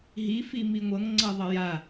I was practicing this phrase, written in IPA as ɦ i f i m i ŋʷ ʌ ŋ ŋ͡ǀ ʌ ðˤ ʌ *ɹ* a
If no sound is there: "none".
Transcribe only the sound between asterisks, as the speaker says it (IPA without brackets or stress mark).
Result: j